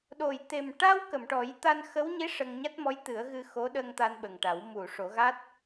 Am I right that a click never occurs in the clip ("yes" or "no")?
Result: yes